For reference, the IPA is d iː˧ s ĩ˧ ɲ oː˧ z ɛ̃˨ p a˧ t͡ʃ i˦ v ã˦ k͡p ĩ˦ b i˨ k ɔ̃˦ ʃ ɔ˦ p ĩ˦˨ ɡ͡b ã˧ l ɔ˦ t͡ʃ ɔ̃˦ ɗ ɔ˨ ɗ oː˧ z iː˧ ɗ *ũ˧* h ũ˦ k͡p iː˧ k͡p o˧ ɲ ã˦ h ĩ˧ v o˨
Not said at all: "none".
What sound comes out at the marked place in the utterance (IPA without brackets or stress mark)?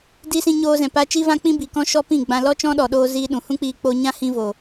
ũ˨